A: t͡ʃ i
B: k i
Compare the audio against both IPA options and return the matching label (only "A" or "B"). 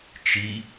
A